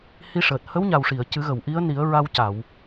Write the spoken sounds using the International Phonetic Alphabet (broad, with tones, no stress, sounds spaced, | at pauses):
h i˧ ʂ əː˨˩ t̚ h ə˧˥ w ɲ a˨˩ w ʂ i˨˩˨ ə̯ c ɨ˨˩˦ ɣ ə˨˩˨ w ʔ i˧˥ ə̯ n i˨˩˦ ə̯ ɹ a˧ w c a˨˩˨ w